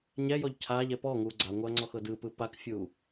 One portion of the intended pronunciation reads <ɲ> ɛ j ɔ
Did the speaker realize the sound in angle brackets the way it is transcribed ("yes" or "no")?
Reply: yes